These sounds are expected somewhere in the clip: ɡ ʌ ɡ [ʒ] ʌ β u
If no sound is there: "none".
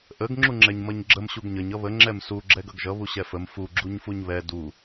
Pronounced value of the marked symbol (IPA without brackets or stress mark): ʒ